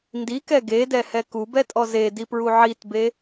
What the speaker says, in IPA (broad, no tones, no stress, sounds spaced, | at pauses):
n d i k ɛ ɡ e d ɛ h ɛ k u b ɛ tʼ ɔ z e d i p ɹ u ʕ i t b e